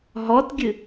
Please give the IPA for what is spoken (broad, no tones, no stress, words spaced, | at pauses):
ɦɔtɡʲɨ